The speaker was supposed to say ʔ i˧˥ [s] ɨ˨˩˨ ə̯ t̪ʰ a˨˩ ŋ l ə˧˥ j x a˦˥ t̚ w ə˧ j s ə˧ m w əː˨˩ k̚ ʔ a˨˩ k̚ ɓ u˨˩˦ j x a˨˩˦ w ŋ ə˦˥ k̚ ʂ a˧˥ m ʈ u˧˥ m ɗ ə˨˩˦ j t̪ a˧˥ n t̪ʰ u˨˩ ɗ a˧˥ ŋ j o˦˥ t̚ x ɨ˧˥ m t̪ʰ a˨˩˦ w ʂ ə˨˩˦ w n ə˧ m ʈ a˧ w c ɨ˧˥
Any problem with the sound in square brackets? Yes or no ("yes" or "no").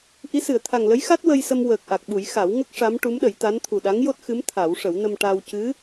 no